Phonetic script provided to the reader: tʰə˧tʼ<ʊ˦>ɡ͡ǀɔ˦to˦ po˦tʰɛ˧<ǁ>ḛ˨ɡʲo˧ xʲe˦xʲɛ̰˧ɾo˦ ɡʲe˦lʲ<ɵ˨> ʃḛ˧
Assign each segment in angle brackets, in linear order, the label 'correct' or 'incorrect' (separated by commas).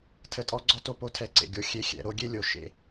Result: incorrect, incorrect, incorrect